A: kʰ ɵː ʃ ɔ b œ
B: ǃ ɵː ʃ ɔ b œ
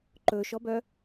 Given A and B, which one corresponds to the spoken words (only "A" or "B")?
B